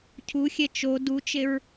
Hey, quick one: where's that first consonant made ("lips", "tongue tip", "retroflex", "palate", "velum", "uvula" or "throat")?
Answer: palate